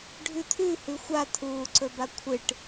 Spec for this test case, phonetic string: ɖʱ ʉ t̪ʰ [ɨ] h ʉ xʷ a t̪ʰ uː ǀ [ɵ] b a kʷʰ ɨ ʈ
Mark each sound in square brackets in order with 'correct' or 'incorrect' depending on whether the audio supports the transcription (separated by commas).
incorrect, correct